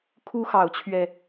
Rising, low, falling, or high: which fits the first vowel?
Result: high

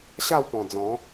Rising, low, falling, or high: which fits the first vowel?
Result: falling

